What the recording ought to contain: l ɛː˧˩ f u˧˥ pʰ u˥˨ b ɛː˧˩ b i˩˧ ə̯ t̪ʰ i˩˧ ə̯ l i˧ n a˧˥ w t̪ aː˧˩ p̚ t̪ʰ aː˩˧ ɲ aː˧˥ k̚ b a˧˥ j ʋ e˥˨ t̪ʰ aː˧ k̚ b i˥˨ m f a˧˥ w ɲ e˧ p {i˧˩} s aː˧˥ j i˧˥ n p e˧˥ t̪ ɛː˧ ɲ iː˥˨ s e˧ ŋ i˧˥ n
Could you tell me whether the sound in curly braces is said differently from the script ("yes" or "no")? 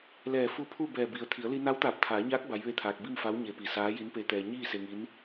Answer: no